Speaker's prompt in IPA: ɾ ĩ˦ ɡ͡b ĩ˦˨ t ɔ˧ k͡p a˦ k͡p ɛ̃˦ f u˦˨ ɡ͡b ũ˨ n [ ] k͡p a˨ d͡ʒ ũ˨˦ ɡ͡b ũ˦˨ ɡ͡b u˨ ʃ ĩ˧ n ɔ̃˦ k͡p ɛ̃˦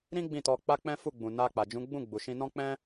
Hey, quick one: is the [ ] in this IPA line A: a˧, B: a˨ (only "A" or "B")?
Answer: A